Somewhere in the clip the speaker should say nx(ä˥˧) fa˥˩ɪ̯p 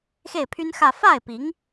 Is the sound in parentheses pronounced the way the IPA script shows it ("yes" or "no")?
yes